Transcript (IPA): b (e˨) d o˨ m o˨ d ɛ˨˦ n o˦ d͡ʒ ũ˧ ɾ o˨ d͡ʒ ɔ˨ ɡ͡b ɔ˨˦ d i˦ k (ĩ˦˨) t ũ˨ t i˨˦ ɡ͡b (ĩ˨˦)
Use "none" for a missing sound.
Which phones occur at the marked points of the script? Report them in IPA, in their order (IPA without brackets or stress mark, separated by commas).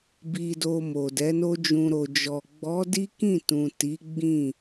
i˨, ĩ˦˨, ĩ˦˨